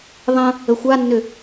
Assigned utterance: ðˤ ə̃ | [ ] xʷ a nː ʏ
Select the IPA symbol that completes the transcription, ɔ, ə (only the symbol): ə